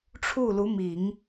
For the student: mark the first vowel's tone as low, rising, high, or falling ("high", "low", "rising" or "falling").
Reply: falling